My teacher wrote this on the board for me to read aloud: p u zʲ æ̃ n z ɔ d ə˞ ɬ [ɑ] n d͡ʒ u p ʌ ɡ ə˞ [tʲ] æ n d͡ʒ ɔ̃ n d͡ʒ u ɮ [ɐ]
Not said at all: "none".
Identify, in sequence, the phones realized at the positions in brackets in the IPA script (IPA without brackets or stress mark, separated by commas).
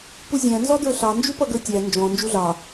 ɑ, tʲ, ɑ